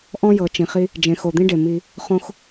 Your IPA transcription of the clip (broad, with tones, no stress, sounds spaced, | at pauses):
ʔ ɔ̃˦ j ɤ˨ t͡ʃ ĩ˨ χ i˦ | d͡ʒ ẽ˨ x o˨ d̪ ĩ˦ ɖ e˨ m i˦ | χ õ˦ x